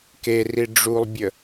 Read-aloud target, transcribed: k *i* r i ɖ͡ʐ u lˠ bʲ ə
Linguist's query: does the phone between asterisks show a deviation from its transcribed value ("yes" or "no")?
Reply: yes